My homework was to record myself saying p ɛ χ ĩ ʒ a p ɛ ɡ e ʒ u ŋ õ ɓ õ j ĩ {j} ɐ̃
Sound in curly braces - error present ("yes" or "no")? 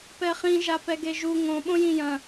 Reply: no